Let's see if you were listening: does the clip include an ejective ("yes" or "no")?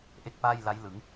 no